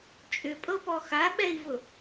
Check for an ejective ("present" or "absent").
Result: present